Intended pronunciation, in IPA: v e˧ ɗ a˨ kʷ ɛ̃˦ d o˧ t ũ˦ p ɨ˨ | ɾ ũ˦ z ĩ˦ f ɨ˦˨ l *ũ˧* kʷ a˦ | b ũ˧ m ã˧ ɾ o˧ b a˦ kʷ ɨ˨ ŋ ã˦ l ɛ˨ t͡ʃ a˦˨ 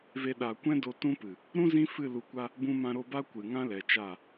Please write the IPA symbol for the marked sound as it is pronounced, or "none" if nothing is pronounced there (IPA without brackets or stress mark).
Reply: u˧